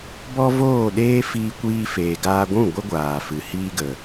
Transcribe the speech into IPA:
b ɔ˦ v oː˦˨ ɗ eː˦ f iː˧ kʷ iː˧ f eː˨ ɡ aː˧ ɡʷ ũ˦˨ ɡʷ ə˦ ɡʷ aː˨ f ɨ˨ h iː˦ ɡ ə˨

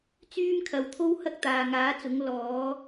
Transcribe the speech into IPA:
t͡s yː˥ m kʰ ɐ˨˥ w t̪ʰ o˥ w h ɐ˥ k̚ t̪ aː˨ ŋ aː˨˥ t͡s ʊ˨˥ ŋ l ɔː˨˧

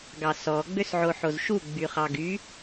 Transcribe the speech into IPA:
ɡ ɑ s ɔ ɡ͡b ø s ʕ o ħ o z ʃ u ɡ͡b y χ ɑ ɡ y

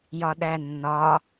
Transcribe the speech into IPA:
j ɒ ɗ æ nː ɒ

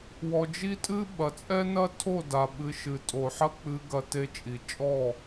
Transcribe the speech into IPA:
w ɔ˧ d͡ʒ i˦ tʼ ɨ˦ ɓ ɐ˨ t͡sʼ ɛ˦ n ɐ˦ tʰ o˦˨ d a˨ ɓ ɨ˨ ʃ ɨ˨ tʼ o˨ ħ ɐ˦ k͡p ɨ˧ ɡ ɐ˨ t e˨ t͡ʃʼ i˨ t͡ʃʼ ɔ˦˨

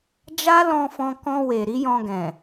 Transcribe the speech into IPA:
d͡ʒ a˦ l ɔ̃˧ f ɔ̃˧ k ɔ̃˧ w e˨ ɾ i˨˦ j ɔ̃˧ ɡ ɛ̃˨

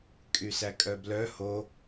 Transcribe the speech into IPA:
kʼ y s æ kʼ œ b l œ h o

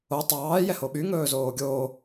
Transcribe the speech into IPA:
o tˤ ɑː j ɛ h o ɓ y ŋ ɵː z oː ɡʲ oː

